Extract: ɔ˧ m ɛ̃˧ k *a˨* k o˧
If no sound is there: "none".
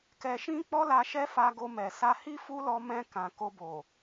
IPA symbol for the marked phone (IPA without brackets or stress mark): ã˨